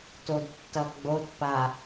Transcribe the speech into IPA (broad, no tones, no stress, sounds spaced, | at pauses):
t o d tː ʌ ɡ͡b o t p a